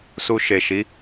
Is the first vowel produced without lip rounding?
no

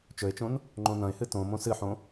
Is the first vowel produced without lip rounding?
no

